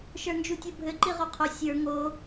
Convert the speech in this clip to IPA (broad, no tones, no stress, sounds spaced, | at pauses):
ʃ ə˞ n d͡ʒ u tʲ o bʱ ɘ ǃ i ʁ o qʰ o sʲ ə˞ ŋ o